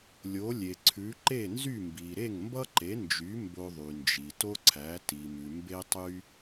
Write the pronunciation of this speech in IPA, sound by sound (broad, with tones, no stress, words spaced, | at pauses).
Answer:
lʲo˩˥lʲe˩ǀʰʉ˩˥ ǃe˥˩nzy˥˩mbi˩ ɾe˥˩ŋmbʌ˥ǃe˩˥nd͡ʒy˩˥ mbo˧ðˤy˩nd͡ʒi˩ to˥ǀʰæ˩˥ ti˩mʉ˩ mbe˥tˤy˥